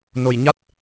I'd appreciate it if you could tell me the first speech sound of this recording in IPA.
n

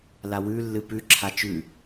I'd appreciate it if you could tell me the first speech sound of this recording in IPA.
l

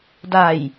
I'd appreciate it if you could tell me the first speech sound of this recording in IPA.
d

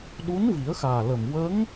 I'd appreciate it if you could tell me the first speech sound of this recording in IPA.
ɗ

